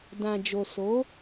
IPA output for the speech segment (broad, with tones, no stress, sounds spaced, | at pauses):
d ã˨ d͡ʒ o˨ s o˨˦